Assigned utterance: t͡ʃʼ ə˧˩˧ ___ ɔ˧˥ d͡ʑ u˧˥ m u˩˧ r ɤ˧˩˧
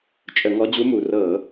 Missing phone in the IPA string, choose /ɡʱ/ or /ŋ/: ŋ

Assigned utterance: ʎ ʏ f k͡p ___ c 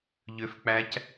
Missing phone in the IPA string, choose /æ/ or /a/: æ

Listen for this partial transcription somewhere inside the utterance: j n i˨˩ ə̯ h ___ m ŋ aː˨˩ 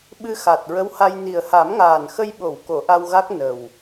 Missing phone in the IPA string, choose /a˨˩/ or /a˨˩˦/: a˨˩˦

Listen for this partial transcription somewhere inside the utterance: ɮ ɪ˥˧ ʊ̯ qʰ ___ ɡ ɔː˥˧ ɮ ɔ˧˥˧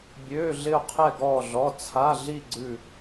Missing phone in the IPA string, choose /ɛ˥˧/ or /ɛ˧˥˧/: ɛ˥˧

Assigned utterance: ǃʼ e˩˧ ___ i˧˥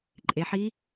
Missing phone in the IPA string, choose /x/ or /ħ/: ħ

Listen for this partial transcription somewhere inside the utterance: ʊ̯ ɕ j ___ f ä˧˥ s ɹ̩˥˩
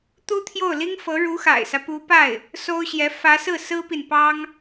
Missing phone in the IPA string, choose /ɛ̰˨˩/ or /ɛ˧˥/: ɛ˧˥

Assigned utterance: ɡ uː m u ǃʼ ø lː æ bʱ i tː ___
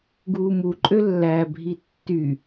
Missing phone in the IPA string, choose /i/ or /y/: y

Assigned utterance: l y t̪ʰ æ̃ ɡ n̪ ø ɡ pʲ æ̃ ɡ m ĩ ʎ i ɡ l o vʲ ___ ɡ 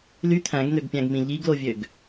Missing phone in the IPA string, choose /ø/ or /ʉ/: ø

